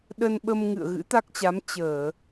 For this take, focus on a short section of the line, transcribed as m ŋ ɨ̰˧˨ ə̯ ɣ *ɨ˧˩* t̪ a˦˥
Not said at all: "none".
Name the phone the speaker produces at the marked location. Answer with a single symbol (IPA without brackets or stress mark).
ɨ̰˧˥